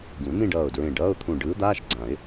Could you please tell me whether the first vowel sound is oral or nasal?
nasal